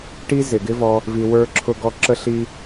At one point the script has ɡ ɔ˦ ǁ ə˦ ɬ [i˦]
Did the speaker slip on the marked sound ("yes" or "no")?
no